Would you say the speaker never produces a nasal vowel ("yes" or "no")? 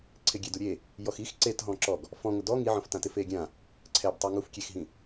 no